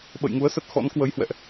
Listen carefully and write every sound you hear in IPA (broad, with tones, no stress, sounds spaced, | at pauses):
ɓ ə̰˧˨ j ŋ u˨˦ ə̯ s ə˦˥ t̚ x ɔ̰˧˥ n k w ə˨˦ j h w ɛ̰˧˨ ʔ